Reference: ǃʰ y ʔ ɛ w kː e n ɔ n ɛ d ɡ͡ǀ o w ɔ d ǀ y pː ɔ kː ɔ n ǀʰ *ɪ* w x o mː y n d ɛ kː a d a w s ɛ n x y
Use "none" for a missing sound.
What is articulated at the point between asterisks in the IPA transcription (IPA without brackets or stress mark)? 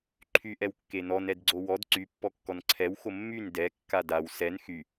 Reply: ɛ